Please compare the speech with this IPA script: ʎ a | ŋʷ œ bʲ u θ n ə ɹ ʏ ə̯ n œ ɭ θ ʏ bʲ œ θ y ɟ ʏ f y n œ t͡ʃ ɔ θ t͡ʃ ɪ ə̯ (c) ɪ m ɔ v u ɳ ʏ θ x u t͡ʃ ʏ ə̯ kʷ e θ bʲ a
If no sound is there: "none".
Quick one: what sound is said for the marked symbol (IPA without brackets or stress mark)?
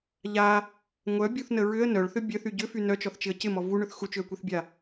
c